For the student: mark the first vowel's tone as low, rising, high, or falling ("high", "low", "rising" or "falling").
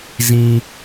high